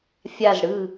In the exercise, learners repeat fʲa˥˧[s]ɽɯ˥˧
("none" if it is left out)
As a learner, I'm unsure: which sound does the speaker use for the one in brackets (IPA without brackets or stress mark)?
z